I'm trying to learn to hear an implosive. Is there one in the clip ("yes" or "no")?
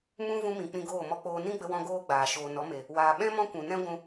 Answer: yes